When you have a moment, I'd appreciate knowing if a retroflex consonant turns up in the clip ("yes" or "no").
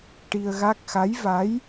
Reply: yes